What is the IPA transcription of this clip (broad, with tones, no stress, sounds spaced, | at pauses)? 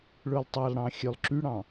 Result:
ɭ ɵ˨ lˠ tˤ ɑ˨ lˠ ɽ ɑ̃˨ xʲ ø˨ lˠ ǁ y˦ ɽ ɑ̃˨